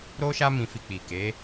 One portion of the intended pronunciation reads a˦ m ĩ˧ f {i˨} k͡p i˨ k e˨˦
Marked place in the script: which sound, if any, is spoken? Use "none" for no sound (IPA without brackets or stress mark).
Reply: i˧